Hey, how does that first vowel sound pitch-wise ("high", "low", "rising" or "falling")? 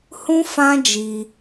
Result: high